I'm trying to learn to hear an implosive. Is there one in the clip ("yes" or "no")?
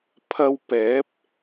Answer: no